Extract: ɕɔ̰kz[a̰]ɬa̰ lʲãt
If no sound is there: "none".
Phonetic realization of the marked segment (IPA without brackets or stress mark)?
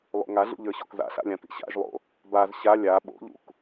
a̰